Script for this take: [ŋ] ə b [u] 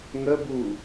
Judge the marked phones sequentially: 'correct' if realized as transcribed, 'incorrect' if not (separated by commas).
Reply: correct, correct